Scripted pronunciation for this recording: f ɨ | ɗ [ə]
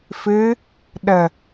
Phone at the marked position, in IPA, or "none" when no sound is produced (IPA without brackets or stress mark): ə